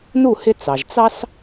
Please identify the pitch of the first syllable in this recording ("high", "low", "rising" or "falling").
falling